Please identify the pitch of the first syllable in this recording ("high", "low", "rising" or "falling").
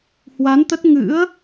rising